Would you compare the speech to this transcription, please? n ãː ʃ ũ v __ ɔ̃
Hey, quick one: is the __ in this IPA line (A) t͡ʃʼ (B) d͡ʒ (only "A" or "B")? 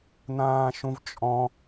A